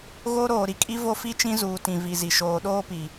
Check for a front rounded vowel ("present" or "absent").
absent